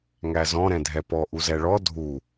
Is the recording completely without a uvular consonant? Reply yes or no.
yes